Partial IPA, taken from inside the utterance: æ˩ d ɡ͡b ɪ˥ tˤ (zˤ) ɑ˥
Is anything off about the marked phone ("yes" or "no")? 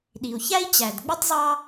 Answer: no